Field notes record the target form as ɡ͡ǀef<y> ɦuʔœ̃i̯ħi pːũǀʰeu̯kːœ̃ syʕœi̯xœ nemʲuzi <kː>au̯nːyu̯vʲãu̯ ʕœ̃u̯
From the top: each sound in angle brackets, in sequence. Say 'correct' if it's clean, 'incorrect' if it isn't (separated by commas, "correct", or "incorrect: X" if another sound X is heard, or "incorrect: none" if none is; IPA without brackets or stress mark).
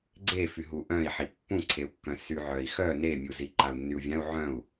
correct, incorrect: ǃ